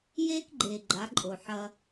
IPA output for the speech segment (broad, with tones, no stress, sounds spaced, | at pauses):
j eː˦ k ɡ͡ǃ eː˨ ɡ͡ǃ a˨˦ ǃʼ o˨ ħ ɐ˦